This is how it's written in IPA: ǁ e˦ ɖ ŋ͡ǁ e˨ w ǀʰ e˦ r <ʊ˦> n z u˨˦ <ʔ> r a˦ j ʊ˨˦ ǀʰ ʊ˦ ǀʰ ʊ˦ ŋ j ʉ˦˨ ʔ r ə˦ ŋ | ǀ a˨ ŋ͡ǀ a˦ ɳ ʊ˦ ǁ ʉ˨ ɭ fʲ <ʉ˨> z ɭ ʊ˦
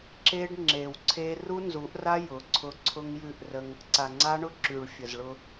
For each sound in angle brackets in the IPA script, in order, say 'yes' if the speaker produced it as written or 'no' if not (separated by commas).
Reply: no, yes, no